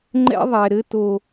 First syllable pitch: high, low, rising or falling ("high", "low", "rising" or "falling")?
high